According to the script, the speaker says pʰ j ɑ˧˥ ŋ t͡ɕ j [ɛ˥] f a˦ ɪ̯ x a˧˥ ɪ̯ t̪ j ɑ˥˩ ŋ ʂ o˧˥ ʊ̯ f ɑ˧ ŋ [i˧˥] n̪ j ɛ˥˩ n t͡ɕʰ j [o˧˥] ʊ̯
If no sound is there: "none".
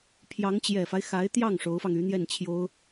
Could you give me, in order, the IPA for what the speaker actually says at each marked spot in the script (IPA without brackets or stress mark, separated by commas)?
ɛ˨˩, y˧˥, o˥